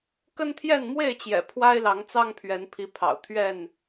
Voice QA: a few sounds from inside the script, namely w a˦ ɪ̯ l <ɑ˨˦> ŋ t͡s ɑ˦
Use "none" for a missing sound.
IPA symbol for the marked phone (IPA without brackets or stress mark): ɑ˨˦